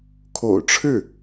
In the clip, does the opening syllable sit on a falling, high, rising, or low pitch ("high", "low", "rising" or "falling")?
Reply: low